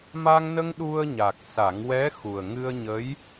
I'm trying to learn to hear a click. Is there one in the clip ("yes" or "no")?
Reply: no